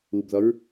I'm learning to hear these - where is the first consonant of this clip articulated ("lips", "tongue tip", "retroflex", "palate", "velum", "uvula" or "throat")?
lips